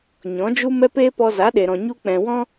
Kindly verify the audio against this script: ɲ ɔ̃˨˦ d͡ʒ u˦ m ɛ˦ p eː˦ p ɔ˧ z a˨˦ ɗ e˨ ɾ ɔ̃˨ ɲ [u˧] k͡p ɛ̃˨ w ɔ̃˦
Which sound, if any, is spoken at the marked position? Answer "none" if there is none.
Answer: u˧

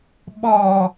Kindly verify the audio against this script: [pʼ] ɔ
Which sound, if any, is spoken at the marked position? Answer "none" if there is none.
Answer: ɓ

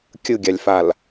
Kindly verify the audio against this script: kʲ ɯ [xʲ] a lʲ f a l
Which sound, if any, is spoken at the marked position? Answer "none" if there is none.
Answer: ɡʲ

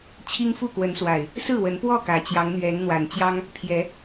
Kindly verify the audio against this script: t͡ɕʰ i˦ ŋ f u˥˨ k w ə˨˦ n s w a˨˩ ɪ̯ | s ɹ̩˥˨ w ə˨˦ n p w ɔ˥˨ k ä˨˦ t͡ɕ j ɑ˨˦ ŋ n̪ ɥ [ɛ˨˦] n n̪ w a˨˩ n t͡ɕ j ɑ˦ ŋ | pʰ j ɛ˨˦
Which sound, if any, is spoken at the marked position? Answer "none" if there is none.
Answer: ɛ˨˦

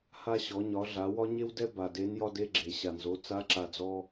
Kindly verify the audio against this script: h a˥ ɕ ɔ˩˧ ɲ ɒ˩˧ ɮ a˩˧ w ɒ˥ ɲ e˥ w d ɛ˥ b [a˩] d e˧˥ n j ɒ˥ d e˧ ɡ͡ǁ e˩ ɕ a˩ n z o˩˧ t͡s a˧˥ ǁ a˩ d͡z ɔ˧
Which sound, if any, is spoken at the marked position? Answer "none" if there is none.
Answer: a˩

